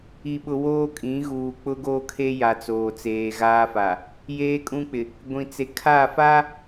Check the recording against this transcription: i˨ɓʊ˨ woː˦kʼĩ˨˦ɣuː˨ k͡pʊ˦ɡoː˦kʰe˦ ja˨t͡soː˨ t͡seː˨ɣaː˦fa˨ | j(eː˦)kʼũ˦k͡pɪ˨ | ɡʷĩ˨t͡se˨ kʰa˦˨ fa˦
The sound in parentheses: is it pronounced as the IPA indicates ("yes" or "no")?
yes